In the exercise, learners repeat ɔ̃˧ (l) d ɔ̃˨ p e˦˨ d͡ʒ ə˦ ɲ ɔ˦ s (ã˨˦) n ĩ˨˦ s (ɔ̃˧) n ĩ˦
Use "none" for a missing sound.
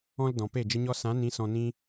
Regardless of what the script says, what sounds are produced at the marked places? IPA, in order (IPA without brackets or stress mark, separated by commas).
l, ã˨˦, ɔ̃˧